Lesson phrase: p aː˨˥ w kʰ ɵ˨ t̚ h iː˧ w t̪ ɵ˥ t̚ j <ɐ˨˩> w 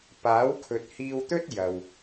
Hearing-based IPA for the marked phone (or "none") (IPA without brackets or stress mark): ɐ˨